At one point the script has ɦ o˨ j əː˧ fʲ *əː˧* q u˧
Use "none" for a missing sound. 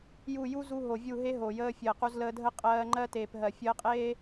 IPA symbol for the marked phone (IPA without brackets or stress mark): əː˨